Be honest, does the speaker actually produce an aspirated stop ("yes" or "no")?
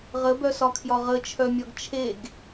yes